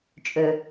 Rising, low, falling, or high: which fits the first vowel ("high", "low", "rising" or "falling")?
low